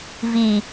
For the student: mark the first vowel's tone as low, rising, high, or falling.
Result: low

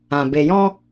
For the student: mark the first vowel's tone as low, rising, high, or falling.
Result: low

